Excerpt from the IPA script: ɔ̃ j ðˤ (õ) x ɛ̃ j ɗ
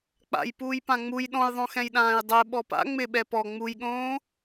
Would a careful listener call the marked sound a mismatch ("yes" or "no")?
no